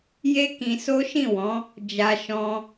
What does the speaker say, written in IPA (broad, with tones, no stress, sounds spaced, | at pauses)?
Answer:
j e˦ k ĩ˧ s o˦ ʃ ĩ˦˨ w ɔ̃˨˦ | d͡ʒ a˧ ʃ ɔ̃˧